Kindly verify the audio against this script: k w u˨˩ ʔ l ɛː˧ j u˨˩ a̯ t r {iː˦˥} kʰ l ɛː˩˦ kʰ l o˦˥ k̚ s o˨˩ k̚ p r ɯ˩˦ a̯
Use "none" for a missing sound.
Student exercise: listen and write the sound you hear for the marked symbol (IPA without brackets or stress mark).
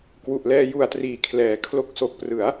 iː˩˦